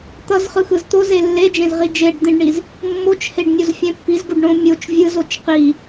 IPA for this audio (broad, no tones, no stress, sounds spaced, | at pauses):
t̪ ʌ z χ ɯ x ɯ z t̪ o z e lː e d͡ʒ ẽ z ʁ i d͡ʒ e ɖ d̪ ĩ ɖ ɳ i z | mː o t͡ʃ h e ɖ nʲ o z fʲ ɛ̃ pː i z ɡ u ɖ ɳ õ mʲ o t͡ʃ vʲ ɯ z o t͡ʃ q i